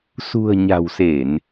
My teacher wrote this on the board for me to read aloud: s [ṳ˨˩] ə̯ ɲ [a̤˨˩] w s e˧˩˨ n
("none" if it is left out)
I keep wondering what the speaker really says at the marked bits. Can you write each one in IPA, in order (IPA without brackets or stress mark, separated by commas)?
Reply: ṳ˨˩, a̤˨˩